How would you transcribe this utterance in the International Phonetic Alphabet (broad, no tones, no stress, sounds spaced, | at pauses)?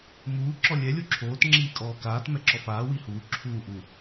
m uː ǁ ɔ lʲ ɛ lʲ o ǁʰ oː t ŋ͡ǁ iː kʼ ɔː k aː t m ɛ ǁ ɔ f aː w i h uː ǁʰ uː ʔ u